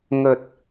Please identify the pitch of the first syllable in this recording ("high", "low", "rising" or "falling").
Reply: low